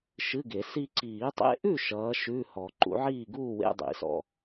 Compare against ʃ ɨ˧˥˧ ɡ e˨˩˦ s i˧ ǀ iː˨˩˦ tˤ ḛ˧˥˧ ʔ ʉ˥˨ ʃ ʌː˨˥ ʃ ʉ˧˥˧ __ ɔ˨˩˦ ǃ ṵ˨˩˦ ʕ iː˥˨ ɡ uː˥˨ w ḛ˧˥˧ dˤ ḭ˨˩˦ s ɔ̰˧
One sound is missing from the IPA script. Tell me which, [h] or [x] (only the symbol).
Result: h